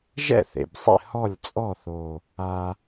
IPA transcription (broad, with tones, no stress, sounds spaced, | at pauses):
ʒ ɛ̰˥˩ θ ḛ˨˩ b sˤ ḛ˥˩ h ɔ˥˩ lʲ t͡sʼ ɔ˥˩ θ o˨˩ | a˧